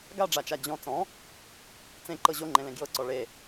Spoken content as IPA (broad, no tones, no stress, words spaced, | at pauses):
ɡaɖ͡ʐat͡ʃa d͡ʑɔ̃ t͡sɔ̃ | t͡sẽǃɤ ʑoŋ͡ǃẽlẽ ɡjɤǀɔ ɭe